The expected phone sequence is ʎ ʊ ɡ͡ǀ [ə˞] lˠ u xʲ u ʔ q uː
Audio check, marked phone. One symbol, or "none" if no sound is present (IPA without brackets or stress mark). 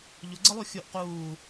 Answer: ə